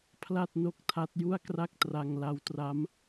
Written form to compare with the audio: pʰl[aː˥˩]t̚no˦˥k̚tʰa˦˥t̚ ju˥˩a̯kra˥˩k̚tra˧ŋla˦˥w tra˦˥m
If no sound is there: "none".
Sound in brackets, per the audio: a˥˩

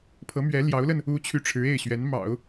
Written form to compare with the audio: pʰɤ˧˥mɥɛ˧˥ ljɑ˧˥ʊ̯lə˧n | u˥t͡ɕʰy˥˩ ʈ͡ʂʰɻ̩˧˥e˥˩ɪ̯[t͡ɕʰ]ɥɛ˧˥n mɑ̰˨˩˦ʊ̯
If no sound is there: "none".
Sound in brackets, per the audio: ɕ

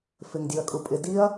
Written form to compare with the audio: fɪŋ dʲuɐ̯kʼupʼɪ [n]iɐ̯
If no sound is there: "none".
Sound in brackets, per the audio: d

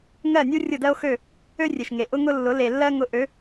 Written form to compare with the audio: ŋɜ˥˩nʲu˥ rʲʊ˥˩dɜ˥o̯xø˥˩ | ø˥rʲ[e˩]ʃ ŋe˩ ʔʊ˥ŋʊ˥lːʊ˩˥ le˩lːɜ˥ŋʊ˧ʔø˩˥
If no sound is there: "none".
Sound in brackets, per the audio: e˩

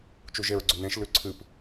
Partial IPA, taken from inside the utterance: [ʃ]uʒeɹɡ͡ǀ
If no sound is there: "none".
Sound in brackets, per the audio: t͡ʃ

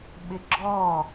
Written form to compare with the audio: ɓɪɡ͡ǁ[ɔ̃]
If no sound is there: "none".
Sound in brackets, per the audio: ɔ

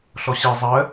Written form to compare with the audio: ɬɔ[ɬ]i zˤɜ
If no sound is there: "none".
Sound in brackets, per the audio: ɕ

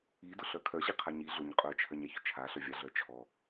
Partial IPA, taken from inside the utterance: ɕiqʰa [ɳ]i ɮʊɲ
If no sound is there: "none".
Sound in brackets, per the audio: ɲ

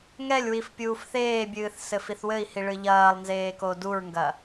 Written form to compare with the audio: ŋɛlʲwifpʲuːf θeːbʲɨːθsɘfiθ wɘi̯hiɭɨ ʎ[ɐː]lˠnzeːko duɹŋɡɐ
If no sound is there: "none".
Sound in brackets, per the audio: ɐː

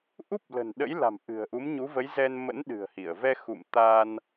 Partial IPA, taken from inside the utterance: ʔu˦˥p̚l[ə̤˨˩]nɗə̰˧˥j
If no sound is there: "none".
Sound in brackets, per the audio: ə̤˨˩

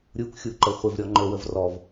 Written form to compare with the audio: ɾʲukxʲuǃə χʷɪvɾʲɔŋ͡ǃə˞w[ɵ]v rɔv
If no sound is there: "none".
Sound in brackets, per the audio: ə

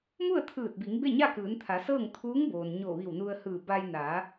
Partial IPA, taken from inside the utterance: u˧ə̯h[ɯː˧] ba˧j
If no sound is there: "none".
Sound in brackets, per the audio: ɯː˧˩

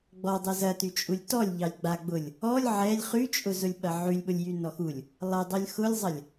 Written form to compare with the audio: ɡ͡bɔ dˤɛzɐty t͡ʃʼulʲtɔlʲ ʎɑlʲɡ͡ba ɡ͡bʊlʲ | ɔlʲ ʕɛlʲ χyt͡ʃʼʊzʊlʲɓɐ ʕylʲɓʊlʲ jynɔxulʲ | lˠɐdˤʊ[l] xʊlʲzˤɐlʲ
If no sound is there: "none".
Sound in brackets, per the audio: lʲ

